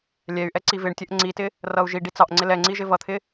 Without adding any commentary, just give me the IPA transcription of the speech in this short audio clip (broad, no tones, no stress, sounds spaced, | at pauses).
lʲ ɛ y̯ ʔ ɛ ǀ i v ɪ ɳ tʲ ə ʔ ŋ͡ǀ i t ɪ | r ʌ u̯ ʒ i ɖ i t͡s ɑ ʔ ŋ͡ǀ ɪ l ɛ ŋ͡ǀ i ʒ ɪ v ʌ t̪ʰ ɪ